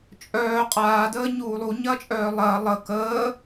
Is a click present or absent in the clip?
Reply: absent